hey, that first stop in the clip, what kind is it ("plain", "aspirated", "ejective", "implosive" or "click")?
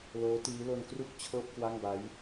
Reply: plain